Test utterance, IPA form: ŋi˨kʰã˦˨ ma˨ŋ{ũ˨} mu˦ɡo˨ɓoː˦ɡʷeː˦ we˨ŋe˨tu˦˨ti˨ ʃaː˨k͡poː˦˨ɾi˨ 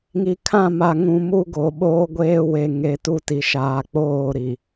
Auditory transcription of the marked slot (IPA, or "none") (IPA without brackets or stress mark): ũ˨